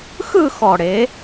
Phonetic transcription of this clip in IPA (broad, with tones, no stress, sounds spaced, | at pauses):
x ɯ˥˧ x ɔ˨˩ ɽ e˩˧